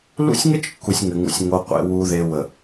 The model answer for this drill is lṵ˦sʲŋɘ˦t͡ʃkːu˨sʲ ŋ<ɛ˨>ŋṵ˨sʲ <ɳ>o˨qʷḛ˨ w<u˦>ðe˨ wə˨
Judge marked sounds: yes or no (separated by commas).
no, no, no